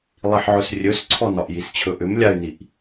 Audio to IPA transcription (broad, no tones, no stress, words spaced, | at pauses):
lˠiħʕɵsrʲɵsǀʰɔ nɒʔjist͡ɕʰɵʔʏm lʲay̯niʔ